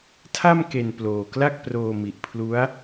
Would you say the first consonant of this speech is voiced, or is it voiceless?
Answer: voiceless